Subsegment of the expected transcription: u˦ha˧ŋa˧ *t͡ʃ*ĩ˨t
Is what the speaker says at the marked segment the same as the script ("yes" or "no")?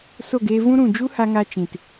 yes